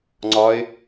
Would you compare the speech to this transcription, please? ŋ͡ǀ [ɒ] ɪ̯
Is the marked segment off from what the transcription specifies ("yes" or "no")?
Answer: no